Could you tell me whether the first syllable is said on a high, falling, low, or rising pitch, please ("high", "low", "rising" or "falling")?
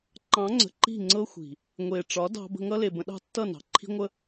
rising